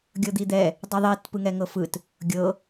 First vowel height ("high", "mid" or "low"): mid